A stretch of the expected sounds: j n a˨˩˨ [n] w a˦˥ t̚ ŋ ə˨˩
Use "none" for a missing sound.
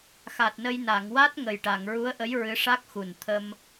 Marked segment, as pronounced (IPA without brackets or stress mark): ŋ